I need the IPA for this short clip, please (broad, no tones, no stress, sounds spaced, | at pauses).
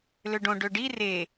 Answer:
l ø ɖ õ ɖ ø ɖ i r e